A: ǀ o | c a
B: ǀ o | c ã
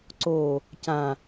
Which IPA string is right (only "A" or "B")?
B